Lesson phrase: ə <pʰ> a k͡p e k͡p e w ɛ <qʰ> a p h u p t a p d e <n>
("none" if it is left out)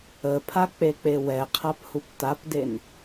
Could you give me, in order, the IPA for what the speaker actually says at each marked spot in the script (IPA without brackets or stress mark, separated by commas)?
pʰ, qʰ, n